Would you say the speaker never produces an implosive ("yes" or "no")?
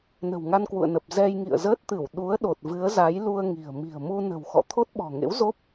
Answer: no